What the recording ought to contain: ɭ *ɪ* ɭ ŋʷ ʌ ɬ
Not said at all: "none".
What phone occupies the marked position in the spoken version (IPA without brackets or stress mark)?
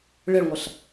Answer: ɪ